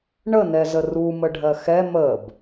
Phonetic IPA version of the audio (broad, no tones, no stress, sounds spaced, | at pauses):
ɳ ə n ɛ z ə r u m ə ɖʱ ɜ x ɛ m ə b